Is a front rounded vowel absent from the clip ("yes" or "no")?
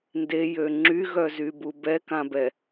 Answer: no